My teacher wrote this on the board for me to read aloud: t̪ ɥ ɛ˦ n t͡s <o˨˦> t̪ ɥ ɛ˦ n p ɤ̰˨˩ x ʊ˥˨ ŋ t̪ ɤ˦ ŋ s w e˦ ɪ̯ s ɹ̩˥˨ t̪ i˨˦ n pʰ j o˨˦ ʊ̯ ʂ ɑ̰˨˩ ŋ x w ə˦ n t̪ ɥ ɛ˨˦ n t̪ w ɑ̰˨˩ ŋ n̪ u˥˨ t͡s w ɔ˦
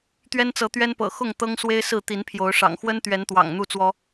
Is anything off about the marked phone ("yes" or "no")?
yes